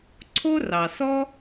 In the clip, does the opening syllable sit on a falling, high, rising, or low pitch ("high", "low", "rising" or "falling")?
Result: high